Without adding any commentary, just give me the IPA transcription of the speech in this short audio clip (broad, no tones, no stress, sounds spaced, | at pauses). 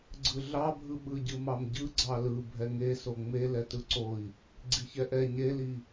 ɡ͡ǀ ɯ ɮ ɑ bʱ ɯ ɓ ɯ ɟ ɯ m ɑ m ɟ ɯ ɡ͡ǀ ɑ l ɯ bʱ ɛ ŋ e s o ŋ͡m e l ɛ t ɯ ǀ o i̯ | ɡ͡ǀ i ç ɛ ʔ ɛ ɲ e l i